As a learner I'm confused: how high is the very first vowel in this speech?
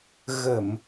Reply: mid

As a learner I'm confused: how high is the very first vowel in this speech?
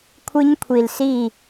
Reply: high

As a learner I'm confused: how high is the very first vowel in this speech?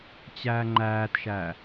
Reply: low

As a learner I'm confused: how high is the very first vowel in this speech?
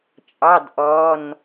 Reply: low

